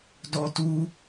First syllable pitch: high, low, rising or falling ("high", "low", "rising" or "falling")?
high